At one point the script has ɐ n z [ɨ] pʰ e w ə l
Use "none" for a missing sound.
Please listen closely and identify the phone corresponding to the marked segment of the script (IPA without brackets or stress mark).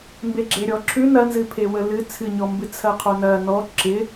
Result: ɨ